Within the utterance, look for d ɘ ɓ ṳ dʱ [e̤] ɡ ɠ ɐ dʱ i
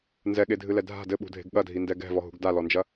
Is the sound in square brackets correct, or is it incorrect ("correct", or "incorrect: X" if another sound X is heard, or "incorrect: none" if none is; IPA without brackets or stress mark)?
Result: correct